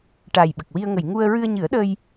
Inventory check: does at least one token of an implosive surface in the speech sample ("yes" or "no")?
yes